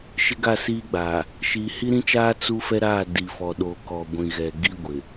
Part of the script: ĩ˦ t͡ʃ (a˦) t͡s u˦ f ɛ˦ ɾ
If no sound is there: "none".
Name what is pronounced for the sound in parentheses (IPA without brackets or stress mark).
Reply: aː˦